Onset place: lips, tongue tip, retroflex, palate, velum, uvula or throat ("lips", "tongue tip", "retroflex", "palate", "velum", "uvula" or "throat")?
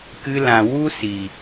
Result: velum